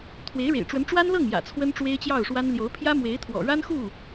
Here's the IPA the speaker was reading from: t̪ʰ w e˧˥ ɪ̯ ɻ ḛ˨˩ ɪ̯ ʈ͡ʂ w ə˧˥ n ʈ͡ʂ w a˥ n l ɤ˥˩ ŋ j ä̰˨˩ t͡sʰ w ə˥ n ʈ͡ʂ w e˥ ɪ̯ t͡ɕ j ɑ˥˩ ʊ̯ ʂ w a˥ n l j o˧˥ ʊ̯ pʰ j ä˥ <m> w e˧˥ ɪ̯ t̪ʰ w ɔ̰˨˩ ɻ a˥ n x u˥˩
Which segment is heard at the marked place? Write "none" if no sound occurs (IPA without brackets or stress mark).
m